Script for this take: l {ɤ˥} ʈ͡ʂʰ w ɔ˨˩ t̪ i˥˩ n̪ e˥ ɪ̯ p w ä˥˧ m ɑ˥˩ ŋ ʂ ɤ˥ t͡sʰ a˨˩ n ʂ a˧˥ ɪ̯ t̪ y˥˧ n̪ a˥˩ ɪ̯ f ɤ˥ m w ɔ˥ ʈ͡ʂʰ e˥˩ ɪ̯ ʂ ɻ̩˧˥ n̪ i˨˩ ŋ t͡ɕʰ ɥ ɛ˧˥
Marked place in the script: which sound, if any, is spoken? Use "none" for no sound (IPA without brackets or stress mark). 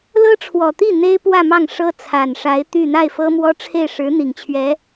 ɤ˥